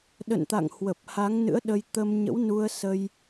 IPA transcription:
ɗ ə̰˧˨ n t̪ a̰˧˨ ŋ h w ə˨˩ p̚ h a˨˦ ŋ n ɨ̰˧˥ ə̯ ɗ ə˧ j t̪ ə˧ m ɲ ə̰˧˥ w n u˧ ə̯ s ə˧ j

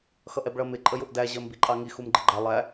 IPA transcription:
x ʌ ʔ ɛ b ɭ ʌ m ɪ ǃʼ ə j ʊ ʔ d æ ʑ ɜ m b i ǃʼ ɑ ŋ i x u m ɡ͡ǃ ɪ ɡ͡ǃ æ lˠ æ

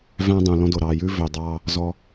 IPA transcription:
v æ̃˦ dˤ ũ˨ l ɔ̃˦ d o˨ ɾ ɑː˨ j ʉː˦ v ø˨ dˤ ɑː˦ | z ɔ˦

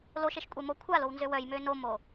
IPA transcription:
l o ʃ e ʃ kʷʼ e m o kʷʰ a l o w n z ø w œ j m ø n o m o

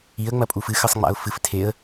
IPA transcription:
i ə̯ ŋ͡m ɐ pʼ u f ɨ x ɨ sˤ ŋ͡m a̰ ʊ̯ f ɨ f tʰ e ə̯

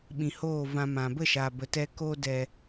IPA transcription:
ɓ ĩ˨ h oː˦˨ v ã˧ m ã˨ b ə˦˨ ʃ a˨ b ə˨ t ɛ˧ k o˧ d ɛ˨

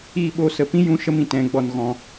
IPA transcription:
i˦˨ ɓ o˦˨ s ə˨ p ĩ˦ j ũ˧ ʃ ə˦ m ĩ˨ t ɛ̃˨ ɡ͡b ɔ˨ n ɣ ɔ̃˨

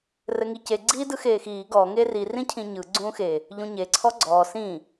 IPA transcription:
r ɘ ŋ i c e ɡ͡ǀ iː d ɯ x eː x iː ɡ ɔ ŋ e r i r ĩ cʰ ĩ ɲ ɯ ɡ͡ǀ ũː x e | ʎ ũ ɲ e ǀʰ ɔ ɡ͡ǀ ɔː s ĩ

